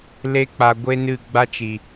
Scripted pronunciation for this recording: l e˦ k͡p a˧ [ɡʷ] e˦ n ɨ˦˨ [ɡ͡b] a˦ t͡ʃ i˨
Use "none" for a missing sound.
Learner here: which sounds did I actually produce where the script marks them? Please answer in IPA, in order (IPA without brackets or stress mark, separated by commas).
ɡʷ, ɡ͡b